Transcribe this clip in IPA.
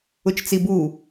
ʊ t͡ʃ t͡s i b u

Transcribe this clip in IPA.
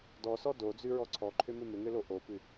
d ɔ s ɔ d o d͡z ʉ ɹ ɔ ǀʰ ɔ ǃʰ ʏ m ʏ m ʏ ŋ ʏ l o ʔ o p ʉ

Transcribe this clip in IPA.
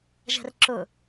ʒ ɛ̤ r ǁ ʊ

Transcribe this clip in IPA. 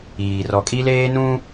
iː˨ r ɔ˨ kʼ i˦ l eː˦ n ũ˦

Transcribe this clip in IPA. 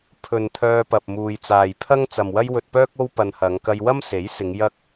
pʰ ɵ˨ n t̪ʰ œː˧ p ɐ˨ p̚ m uː˨ j t͡s aː˨ j pʰ ɐ˥ ŋ t͡s ɐ˨ m w ɐ˥ j w ɵ˧ t̚ p œː˥ k̚ o˥ w p ɐ˧ n h ɐ˨˧ ŋ k ɐ˧ j w ɐ˥ m s e˨˥ j s ɪ˨˧ ŋ j ɐ˥ k̚

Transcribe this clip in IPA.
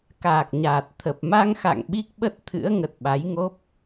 k aː˨˩ k̚ ɲ aː˨˩ t̚ t̪ʰ ə˨˩ p̚ m a˧ ŋ x a̰˧˨ ŋ ɓ i˦˥ k̚ ɓ ə˦˥ t̚ t̪ʰ ɨ̰˧˥ ə̯ ŋ ə˨˩ t̚ ɓ a˨˦ j ŋ o˦˥ p̚

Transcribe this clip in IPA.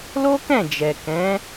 l o˦ k ɛ̃˦˨ d͡ʒ ɛ˨ k ɛ̃˨˦

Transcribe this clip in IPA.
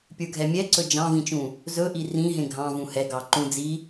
pʲ ə˞ ɡʱ ɛ mʲ ɛ ǀ ɵ d͡ʒ ɑ̃ v ĩ t͡ʃ ũ | z ɵ ʔ i r ĩ ɦ ẽ ɡʱ ɑ̃ v ũ h ɛ ɡ ɑ ǃ ũ d͡z i

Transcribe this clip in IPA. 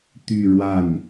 t̪ y˥˧ ɻ w a˥˩ n

